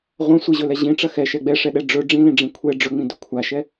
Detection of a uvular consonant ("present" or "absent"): present